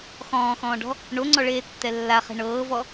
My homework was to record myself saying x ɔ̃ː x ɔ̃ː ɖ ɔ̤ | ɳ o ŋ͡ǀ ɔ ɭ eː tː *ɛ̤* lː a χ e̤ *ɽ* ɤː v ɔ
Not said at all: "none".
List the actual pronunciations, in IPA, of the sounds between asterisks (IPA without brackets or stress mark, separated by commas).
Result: ɛ, ɳ